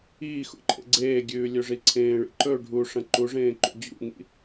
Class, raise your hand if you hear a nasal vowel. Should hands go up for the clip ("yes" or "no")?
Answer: yes